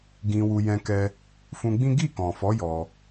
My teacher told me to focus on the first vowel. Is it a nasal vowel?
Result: yes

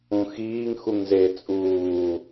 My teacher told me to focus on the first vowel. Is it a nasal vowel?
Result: yes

